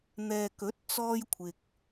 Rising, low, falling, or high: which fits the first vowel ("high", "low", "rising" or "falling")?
low